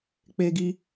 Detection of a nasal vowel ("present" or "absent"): absent